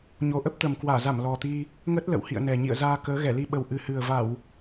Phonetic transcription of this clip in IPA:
ɲ o˨˦ ʔ ə˦˥ p̚ t̪ ə˨˩ m k w aː˧˩ z a˧˩ m l ɔ˨˩ t̪ i˧ | ŋ ə˦˥ t̚ l ə̰˧˨ w h ḭ˧˨ ə̯ n ɛ˨˩ ɲ ḭ˧˨ ə̯ z aː˧ k əː˨˦ ɣ ɛ˧˩ l i˧ ɓ ə˨˩ w ʔ ɨ˨˩ h ɨ˨˩ ə̯ v a˧˩˨ w

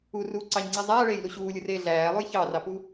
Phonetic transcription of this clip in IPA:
u r uː ǀ ɑ ɲ ŋ͡ǀ i zˤ æː ɭ eː j l u ɕ uː lʲ ɯ r eː ɮ æː lˠ u j ç ɑ r ɑ p u

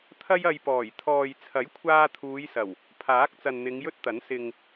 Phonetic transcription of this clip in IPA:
t̪ʰ ɐ˥ j ɐ˧ j p ɔː˨˩ j t̪ʰ ɔː˨ j t͡sʰ ɐ˨˥ j kʷʰ aː˧ t̪ʰ uː˨˧ j s ɐ˨˩ w | pʰ aː˨˥ k̚ t͡s ɐ˨ n n̪ ɪ˨˧ ŋ j ɵ˥ t̚ t̪ ɐ˨˥ n s ɪ˨ ŋ

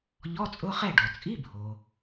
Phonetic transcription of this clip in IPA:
ʎ ɔ˧˥˧ t͡sʼ ʊ˧˥˧ χ ɛ˥˨ ɖ ɔ˩ t͡sʼ i˧˥˧ bʱ o˩

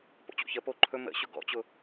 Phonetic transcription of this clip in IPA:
p o̰ t͡ɕ o̰ ç ə p o ǃʰ ɵ m ə̰ ɕ ʊ ɡ ɔ̰ t͡ɕ ʊ

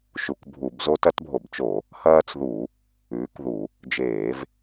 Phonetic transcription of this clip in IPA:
ʃ u˧˩˧ k bʱ u˧˩˧ b z o˦ t ɐ˦ t bʱ o˧˩˧ b t͡ʃ o˧˩˧ | h ɐː˦ t͡s ð u˧˩˧ | ʉː˨˥ k ð u˧˩˧ | d͡ʒ eː˧˩˧ v

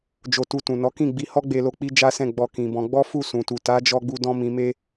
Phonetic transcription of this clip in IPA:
d͡ʒ o˧ t u˧ t ũ˨ n ɔ˨˦ k ĩ˦˨ ɡ͡b i˧ h ɔ˦ ɡ͡b e˧ l o˧ k͡p i˦ d͡ʒ a˦ s ɛ̃˦˨ ɡ͡b ɔ˧ k ĩ˨ b ɔ̃˧ ɡ͡b ɔ˦ f u˦˨ s ũ˨ t u˨ t a˨˦ d͡ʒ ɔ˧ ɡ͡b u˧ d ɔ̃˧ m ĩ˨ m e˧

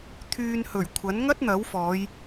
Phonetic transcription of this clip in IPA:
t̪ʰ yː˧ n h ɵ˨˩ ɥ kʷʰ ɐ˨˥ n ŋ ɐ˥ t̚ n̪ ɐ˨˥ w f ɔː˨˧ j

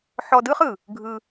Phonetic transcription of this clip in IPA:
ħ ɔ˧ d ɯ˦ χ ɯ˨ | ɡʱ ɯ˧

